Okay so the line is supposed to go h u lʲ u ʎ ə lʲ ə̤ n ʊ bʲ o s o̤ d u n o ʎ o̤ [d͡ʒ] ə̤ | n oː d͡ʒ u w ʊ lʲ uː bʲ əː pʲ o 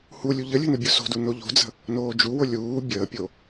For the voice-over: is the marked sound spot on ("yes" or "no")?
no